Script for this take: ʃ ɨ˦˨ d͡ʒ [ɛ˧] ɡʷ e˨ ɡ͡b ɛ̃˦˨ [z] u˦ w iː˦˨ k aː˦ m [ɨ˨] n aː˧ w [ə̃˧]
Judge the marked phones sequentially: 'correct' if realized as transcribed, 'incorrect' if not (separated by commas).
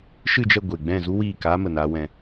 incorrect, correct, incorrect, incorrect